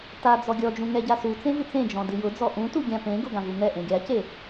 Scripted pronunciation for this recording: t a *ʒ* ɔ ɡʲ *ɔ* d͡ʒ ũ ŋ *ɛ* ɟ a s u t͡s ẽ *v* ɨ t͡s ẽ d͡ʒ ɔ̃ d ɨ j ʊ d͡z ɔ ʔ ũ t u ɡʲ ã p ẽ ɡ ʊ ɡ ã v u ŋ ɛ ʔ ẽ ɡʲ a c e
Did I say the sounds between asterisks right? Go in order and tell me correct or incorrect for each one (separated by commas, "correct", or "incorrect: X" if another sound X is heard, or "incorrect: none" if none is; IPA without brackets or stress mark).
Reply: incorrect: d͡z, correct, correct, correct